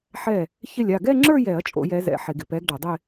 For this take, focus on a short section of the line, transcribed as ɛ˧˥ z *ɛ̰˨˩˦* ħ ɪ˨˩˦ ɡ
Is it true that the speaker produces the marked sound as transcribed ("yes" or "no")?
yes